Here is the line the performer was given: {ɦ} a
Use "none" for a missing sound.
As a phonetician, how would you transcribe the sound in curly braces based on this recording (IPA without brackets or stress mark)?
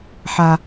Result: ħ